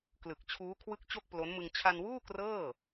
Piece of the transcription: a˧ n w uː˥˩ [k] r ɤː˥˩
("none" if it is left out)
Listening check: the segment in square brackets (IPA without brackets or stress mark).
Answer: k